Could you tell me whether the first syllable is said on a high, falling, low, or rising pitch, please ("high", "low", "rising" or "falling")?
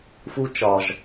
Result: high